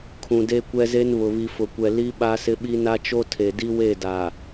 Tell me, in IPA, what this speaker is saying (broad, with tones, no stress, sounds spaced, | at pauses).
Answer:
kʰ ũ˨ d e˦ kʷ ɛ˦ z e˦ n β ʊ˨ β i˨ f ʊ˨ kʷ ɛ˨ l i˦ ɓ a˦ s ɪ˦ ɓ i˦ n a˦ t͡ʃ o˦ tʰ e˨ d i˦ w e˦˨ d a˨